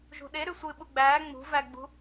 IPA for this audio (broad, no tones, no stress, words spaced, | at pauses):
ʒṳɗe ɾʉsʷɨ ɓuɡ͡bæː ŋ͡mṳvæɡ͡bṳ